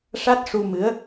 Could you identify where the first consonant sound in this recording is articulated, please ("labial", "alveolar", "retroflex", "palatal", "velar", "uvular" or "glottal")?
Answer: retroflex